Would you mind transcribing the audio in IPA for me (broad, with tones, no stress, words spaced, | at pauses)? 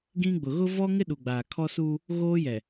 ɡĩ˦ɡ͡bʊ˨ ɣʊ˦ vɔ˦ŋɪ˦ ɗu˨ɡ͡baː˨ kʰɔ˦suː˦ | ɣoː˦jɛ˨